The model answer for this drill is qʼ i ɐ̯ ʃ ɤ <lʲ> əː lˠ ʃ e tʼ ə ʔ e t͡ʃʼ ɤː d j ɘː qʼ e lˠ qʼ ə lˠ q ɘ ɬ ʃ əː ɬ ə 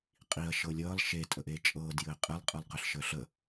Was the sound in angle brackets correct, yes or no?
yes